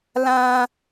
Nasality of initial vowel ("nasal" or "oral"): nasal